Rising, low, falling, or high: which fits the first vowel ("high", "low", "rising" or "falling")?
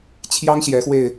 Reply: high